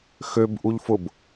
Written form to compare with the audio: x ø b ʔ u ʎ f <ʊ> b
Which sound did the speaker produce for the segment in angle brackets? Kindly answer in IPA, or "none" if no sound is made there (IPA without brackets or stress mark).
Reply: ʊ